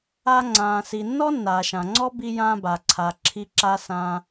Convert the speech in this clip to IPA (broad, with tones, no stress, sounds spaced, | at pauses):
a˧ ŋ͡ǀ ãː˩ s i˩ nː ɔ˥ nː aː˩ ʃ ã˩ ŋ͡ǀ ɔ˥ b i˧ j ãː˧ b a˩ ǀʰ a˩ ǁʰ i˧ ǁ a˧ s ãː˧